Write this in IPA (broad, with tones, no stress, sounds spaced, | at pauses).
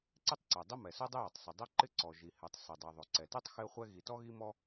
ǀ ɪ˥ tˤ ǀ ɛ˩ dˤ ɪ˥ m ɛ˩ s ɵ˥ dˤ ɪ˥ j ɪ˩ tˤ sˤ ɪ˩ dˤ ɵ˥ ǃ ɪ˥ ǀ ɔ˩ ʒ i˩ h ɛ˩ tˤ s ɵ˩ dˤ i˩ ðˤ ɵ˩ ǀ ɛ˩ t i˥ tˤ x ɪ˥ ə̯ χʷ ɛ˥ ɣ i˩ t ɔ˥ ɣ i˥ m ɔ˥